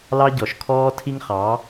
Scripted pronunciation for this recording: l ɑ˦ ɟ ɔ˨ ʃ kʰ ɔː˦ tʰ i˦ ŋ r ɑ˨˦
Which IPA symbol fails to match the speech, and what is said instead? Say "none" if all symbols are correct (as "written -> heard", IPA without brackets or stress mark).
r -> χ